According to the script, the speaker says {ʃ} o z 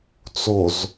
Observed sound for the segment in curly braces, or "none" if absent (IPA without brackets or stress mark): t͡s